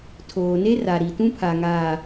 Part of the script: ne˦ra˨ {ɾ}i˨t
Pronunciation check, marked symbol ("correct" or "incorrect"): correct